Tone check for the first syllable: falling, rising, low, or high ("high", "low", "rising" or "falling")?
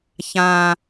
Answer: low